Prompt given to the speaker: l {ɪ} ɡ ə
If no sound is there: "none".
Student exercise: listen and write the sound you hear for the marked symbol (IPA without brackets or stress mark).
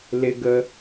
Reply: ɪ